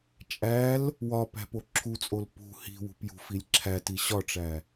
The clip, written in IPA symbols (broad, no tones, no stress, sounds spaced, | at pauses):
t͡ʃʼ æ l | w ɒ p æ̤ p o ǁʰ u t͡sʼ o l p ṳ h i̤ w ṳ p j ṳ f i lʲ ǁʰ æ t i ɕ ɒ ʈ͡ʂ æ